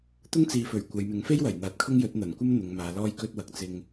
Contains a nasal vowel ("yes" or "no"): no